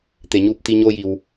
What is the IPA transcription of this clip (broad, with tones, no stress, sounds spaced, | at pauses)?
t̪ e˩ ɲ uː˥˨ p̚ t̪ i˧ ɲ oː˧ j i˩ w